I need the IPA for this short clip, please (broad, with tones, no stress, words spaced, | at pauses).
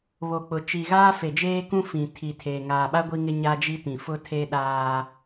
βo˨k͡pʊ˨ t͡ʃi˨ɣaː˦ fe˨d͡ʒeː˦kũ˦ fĩ˨tʰi˨tʰeː˨ ŋaː˨ɓa˦ ɡʷi˦ŋɪ˦ ɲa˦d͡ʒi˦tĩ˨ fʊ˦tʰe˦ɗaː˦